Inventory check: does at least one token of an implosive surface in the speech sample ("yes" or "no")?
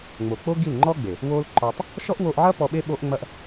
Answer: yes